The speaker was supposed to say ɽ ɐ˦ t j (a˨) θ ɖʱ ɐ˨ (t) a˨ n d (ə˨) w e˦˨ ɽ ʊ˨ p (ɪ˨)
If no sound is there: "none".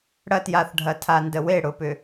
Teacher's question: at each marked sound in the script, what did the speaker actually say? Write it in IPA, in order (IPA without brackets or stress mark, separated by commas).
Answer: a˨, tʰ, ə˨, ʏ˨